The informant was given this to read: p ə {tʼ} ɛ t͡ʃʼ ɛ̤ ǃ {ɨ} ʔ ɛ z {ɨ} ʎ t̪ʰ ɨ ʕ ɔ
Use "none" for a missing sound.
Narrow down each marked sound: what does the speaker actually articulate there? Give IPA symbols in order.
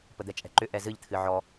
d̪, ʏ, ɨ

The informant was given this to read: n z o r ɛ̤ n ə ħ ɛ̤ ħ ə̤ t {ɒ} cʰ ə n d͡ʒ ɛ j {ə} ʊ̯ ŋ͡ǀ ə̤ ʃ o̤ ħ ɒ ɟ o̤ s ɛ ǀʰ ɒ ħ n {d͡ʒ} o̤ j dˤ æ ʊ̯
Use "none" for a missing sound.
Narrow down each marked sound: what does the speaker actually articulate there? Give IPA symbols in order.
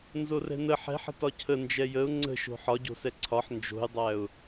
ɒ, ə, d͡ʒ

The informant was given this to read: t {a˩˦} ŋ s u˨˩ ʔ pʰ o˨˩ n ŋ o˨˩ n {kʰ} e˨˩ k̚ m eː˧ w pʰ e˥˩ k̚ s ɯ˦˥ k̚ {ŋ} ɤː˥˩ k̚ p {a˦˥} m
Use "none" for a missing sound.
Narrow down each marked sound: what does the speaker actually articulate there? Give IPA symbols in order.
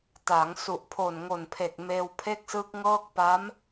a˩˦, pʰ, ŋ, a˦˥

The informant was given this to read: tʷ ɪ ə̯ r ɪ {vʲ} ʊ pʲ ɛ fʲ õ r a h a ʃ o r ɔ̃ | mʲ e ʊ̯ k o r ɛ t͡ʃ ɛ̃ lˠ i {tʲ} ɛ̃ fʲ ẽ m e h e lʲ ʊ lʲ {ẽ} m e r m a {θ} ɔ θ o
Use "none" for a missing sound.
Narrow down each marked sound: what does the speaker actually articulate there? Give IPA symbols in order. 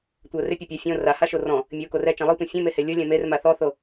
pʲ, tʷ, ɛ̃, θ

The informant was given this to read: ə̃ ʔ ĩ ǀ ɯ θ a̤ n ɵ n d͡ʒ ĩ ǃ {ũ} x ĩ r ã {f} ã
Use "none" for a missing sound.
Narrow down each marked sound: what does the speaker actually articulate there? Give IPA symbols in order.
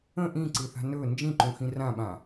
ũ, ɓ

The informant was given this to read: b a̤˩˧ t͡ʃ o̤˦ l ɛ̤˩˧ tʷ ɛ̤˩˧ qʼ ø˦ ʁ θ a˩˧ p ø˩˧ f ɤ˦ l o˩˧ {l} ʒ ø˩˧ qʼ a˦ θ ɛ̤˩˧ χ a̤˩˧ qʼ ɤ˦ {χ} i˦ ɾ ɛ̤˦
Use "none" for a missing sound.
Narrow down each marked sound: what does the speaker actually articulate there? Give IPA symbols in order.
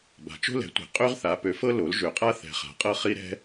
l, χ

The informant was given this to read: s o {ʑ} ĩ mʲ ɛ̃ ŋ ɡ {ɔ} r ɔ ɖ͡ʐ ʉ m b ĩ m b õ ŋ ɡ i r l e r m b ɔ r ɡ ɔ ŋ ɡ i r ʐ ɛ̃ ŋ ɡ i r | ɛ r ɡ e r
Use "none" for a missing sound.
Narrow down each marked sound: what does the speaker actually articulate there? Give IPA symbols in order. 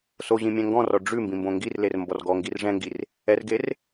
ʑ, ɔ̃

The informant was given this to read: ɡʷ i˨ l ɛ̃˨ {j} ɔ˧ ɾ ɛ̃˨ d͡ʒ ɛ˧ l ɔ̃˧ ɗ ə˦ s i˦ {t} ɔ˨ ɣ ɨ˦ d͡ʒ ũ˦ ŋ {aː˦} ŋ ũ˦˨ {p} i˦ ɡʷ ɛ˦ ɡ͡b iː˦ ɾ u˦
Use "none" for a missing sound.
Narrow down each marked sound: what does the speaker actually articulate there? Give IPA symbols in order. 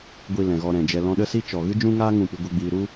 ɣ, t͡ʃ, aː˦, p

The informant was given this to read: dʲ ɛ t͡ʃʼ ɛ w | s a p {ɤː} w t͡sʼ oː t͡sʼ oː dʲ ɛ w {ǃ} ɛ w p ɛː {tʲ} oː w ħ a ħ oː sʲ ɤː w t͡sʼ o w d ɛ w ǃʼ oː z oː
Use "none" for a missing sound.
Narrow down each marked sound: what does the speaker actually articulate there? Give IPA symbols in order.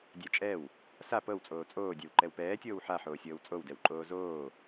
ɤ, ǃ, tʲ

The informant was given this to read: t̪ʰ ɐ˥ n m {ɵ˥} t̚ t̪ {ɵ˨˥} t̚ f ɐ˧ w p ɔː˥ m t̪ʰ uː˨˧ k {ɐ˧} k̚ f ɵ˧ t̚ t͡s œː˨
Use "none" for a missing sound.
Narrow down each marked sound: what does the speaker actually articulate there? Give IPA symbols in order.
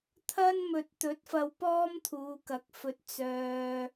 ɵ˨, ɵ˨˥, ɐ˨˥

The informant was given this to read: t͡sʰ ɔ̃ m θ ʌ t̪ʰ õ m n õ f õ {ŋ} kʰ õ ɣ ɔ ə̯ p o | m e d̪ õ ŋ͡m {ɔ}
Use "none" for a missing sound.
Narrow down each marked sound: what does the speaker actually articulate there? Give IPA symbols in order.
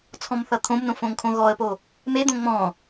ŋ, ɔ̃

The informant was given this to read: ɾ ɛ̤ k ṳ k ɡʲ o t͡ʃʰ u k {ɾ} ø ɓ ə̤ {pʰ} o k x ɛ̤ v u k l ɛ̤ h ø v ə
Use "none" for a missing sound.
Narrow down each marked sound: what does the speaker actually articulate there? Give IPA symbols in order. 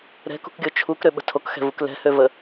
ɾ, tʰ

